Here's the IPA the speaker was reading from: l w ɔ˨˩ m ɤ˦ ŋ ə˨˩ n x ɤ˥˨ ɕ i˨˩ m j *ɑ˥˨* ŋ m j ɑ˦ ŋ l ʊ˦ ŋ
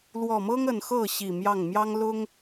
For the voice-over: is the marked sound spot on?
yes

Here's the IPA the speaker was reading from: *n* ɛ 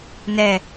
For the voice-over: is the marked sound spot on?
yes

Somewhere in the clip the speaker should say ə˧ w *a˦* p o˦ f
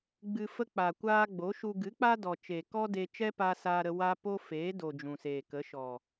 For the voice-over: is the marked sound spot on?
yes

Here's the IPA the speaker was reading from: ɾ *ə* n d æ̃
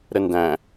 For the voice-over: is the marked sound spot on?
yes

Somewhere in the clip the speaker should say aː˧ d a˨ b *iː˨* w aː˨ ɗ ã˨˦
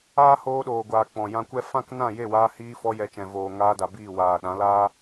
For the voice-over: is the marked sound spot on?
no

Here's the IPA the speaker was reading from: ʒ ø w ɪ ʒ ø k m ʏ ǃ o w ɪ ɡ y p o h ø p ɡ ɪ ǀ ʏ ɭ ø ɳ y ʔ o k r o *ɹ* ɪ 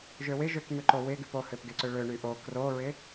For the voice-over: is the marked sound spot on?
yes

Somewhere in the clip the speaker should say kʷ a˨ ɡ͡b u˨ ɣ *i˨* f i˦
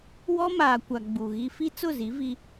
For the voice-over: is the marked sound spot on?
no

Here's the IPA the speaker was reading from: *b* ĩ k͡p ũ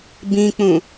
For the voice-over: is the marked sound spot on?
yes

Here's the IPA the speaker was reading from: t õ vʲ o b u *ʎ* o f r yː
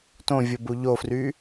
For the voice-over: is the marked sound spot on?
yes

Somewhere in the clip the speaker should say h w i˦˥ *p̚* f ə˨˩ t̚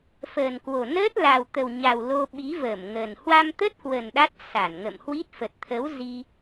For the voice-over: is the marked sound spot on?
no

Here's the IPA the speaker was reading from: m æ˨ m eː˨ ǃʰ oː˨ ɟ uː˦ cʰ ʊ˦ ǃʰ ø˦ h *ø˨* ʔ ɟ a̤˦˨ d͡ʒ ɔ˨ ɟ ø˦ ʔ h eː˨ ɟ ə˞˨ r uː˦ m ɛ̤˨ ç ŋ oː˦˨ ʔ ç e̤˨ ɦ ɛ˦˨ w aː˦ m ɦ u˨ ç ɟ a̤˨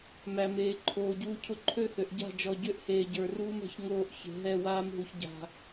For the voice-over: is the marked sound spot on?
yes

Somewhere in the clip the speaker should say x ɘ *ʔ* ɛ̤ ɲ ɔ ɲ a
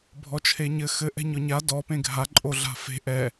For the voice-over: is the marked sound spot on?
yes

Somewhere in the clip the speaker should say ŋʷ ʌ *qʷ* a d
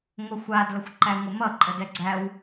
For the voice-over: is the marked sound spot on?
no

